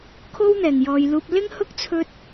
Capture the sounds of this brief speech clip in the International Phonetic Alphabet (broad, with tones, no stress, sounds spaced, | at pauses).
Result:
kʰ o˥ w n̪ ɛː˨˩ ŋ j ɔː˨ j l uː˧ p̚ l ɪ˥ ŋ h ʊ˥ k̚ t͡sʰ ɵ˥ t̚